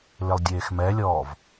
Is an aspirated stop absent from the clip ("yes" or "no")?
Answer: yes